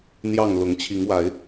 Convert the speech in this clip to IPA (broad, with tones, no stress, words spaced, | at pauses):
n̪jɑ˥˨ŋ lʊ˨˦ŋ t͡ɕʰi˨˦ŋwa˨˦ɪ̯